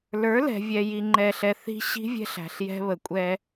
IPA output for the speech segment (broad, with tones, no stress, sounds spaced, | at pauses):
l ə˞˨˦ l ɛ̤˨ vʲ ɛ˨ j i˨ ŋ͡ǃ ɛ˨ ɬ ɛ˨ θ i̤˦ ɕ i̤˦ vʲ ɛ̤˦ ɬ æ̤˨ ɬ j ɛ̤˦ β ə˨ kʷʼ ɛ˦